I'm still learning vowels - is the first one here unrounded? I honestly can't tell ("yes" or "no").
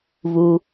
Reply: no